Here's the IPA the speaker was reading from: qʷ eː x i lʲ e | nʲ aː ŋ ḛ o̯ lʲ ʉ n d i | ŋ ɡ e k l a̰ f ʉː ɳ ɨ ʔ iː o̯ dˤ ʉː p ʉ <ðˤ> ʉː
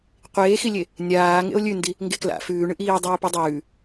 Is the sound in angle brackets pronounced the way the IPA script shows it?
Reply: no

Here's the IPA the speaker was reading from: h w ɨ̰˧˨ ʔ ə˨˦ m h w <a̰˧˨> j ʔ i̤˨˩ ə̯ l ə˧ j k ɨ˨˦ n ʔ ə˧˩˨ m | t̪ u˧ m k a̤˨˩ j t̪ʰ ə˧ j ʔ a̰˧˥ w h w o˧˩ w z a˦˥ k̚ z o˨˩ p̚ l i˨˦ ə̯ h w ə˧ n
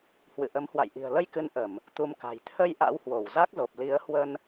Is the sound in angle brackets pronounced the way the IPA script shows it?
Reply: yes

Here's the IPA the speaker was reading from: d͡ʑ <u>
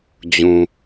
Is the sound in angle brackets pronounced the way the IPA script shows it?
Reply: no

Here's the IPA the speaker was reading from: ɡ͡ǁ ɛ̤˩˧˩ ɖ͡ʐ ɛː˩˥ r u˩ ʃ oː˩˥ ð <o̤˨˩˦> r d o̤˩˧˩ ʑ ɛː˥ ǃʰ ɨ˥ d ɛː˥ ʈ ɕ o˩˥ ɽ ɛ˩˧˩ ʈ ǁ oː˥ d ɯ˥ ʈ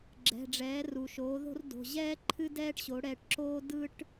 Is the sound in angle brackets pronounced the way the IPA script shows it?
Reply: no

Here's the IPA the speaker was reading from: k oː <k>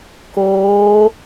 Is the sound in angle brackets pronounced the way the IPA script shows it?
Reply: no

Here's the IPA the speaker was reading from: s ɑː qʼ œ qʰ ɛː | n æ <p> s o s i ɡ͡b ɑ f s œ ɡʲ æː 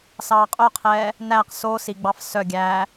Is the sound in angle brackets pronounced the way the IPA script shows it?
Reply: no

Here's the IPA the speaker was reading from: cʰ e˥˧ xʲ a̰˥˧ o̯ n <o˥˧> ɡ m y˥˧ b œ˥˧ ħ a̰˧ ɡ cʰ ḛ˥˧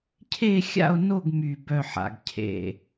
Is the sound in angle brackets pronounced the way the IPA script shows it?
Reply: yes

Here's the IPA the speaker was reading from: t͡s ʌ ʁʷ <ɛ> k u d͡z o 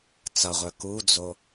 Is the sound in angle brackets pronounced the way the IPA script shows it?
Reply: no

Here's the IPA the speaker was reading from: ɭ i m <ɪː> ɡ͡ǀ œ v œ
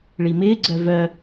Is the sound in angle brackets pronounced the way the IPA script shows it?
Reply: yes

